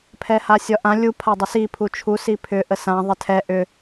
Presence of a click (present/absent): absent